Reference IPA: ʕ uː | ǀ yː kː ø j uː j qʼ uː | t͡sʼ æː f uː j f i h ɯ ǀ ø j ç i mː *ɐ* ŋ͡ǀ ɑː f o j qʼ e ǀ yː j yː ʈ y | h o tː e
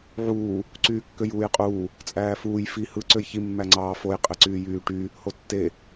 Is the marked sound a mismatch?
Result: yes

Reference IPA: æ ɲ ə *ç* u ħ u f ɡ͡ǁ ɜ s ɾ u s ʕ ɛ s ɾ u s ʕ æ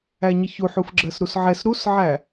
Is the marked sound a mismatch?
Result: no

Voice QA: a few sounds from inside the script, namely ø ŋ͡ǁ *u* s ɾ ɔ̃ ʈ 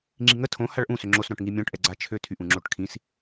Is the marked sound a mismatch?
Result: yes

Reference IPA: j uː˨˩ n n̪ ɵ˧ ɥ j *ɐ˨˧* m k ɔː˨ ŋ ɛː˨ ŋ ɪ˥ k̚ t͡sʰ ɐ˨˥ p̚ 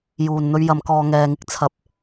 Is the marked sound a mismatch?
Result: no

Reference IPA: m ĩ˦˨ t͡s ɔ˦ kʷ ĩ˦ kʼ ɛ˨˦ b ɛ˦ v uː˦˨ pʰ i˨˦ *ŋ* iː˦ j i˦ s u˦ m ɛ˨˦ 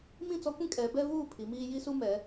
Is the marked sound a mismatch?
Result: yes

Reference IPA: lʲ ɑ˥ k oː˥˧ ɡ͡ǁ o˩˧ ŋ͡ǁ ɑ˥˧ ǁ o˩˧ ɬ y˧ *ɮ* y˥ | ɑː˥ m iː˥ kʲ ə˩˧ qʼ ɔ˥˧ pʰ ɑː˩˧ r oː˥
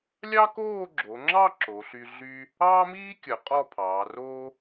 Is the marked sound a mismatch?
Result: no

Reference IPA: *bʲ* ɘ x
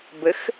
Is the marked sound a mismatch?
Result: yes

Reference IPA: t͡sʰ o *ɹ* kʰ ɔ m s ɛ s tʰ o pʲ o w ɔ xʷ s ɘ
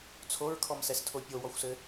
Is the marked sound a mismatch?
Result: no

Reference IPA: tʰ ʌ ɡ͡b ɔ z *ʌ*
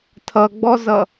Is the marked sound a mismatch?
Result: no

